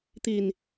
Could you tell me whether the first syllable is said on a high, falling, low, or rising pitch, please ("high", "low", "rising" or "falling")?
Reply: low